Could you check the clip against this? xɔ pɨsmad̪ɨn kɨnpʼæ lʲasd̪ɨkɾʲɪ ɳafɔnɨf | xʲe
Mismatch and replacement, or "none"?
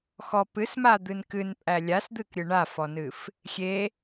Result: ɪ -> ɨ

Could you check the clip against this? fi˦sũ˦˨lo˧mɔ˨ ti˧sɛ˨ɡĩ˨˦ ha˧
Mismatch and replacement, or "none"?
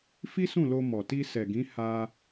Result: none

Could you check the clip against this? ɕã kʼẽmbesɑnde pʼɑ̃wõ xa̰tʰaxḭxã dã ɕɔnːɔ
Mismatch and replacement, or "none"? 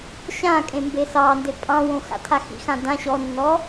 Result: none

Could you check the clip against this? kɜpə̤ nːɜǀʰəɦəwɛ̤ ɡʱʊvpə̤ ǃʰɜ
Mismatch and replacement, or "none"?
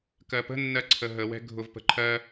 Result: none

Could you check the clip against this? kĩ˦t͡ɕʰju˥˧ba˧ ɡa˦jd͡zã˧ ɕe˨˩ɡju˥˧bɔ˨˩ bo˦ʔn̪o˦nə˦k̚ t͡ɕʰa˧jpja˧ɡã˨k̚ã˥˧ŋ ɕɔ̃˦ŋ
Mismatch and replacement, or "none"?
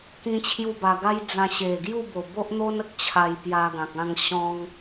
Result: ɔ˨˩ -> o˨˩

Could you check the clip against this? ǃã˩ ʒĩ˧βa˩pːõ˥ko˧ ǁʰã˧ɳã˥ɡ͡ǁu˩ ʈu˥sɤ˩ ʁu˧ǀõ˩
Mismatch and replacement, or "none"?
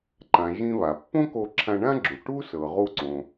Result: none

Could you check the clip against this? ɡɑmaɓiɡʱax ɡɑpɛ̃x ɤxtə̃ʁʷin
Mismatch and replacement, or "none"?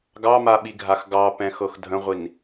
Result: t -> dʱ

